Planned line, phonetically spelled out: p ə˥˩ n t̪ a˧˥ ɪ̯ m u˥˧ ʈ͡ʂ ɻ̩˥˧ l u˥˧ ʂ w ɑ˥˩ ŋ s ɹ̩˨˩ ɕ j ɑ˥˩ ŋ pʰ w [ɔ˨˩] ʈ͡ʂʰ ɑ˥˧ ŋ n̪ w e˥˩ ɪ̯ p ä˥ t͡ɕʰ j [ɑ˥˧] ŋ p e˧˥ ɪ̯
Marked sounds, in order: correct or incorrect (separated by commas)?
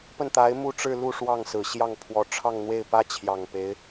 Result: incorrect, incorrect